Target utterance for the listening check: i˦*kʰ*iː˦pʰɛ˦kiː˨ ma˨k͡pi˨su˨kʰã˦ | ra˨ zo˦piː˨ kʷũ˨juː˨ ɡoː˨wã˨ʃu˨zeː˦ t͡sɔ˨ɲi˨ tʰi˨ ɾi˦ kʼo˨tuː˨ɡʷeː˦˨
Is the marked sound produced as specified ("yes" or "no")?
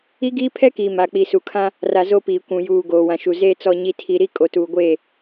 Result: no